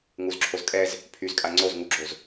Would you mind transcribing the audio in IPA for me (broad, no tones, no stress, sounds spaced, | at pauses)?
ŋ u z ǁʰ o z kʼ ɛ z | pʰ y z kʼ a ŋ͡ǀ o z ŋ u ɡ͡ǁ o z